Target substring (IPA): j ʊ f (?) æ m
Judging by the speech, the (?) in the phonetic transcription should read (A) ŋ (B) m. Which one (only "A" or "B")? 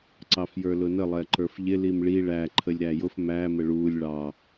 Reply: B